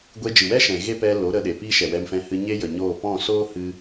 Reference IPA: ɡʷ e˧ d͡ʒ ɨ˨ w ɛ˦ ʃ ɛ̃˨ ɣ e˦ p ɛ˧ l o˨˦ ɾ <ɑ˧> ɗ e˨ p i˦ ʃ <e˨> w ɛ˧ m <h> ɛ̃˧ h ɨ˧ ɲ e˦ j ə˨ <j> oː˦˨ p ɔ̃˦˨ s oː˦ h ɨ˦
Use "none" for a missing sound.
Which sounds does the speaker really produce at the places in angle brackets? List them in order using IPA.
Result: ə˧, ɛ˨, f, ɲ

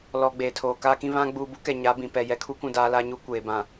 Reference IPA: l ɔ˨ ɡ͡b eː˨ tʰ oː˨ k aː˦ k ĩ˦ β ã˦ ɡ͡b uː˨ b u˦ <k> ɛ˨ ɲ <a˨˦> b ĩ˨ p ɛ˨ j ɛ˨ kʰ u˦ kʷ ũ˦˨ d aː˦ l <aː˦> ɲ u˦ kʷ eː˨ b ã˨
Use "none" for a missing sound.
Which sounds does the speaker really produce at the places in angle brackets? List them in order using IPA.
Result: k, a˨˦, aː˦

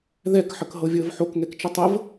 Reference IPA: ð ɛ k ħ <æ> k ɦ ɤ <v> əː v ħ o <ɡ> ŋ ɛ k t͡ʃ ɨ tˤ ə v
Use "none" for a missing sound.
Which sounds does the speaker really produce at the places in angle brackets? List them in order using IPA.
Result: ə, vʲ, k

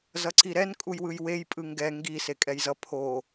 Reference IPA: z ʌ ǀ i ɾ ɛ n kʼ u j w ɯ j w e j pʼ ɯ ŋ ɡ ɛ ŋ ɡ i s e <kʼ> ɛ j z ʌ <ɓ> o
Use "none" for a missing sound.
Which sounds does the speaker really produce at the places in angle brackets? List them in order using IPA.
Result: kʼ, pʰ

